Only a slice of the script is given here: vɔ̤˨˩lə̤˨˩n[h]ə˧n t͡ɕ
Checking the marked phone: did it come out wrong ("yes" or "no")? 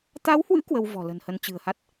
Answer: no